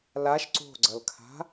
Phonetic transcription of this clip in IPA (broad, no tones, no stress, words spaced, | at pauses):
laʃ ǀo̤ɡ͡ǀʌlkʰa̤